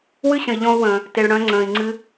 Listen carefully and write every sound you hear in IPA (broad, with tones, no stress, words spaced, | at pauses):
wɨ˦ɕə̃˨i̯ʎɔ̃˧u̯wə̃ː˨ | te˨ɭɽœ̃˧ ŋ͡ǀə̃ː˨i̯ŋ͡ǀɨ˧